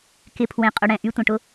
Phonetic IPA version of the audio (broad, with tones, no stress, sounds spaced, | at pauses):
k ɪ˧˥˧ pʰ w ẽ˧ qʼ ʊ˧ ɽ ɛ̃˧˥˧ ʔ y˧˥˧ tʷ ɐ̃˧ ʈ ʊ˧˥˧